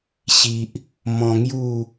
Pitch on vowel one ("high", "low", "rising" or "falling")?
low